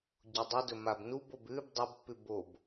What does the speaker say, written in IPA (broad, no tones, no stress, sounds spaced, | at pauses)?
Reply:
ɟ o dˤ ɨ d ɵ m a b n u b o b ʉ b dˤ a b pː ʉ b o b